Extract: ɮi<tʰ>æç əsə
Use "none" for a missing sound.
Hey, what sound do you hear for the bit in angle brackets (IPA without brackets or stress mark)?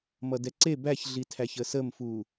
tʰ